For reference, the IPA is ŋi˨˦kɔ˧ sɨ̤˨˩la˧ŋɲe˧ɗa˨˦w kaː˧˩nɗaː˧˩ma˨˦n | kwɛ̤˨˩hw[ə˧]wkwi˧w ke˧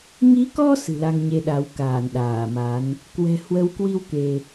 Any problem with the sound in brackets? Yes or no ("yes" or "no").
yes